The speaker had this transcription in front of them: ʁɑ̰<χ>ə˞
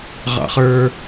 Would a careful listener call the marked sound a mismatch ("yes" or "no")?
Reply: no